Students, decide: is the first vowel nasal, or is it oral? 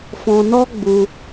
nasal